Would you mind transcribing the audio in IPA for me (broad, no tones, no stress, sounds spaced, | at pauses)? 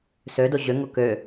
s ø d o ʑ ø ŋ o k ø